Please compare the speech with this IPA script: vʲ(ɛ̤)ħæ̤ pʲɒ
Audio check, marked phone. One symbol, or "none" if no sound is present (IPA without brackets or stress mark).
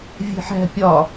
e̤